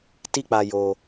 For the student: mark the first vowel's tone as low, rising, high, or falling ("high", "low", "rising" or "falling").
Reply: high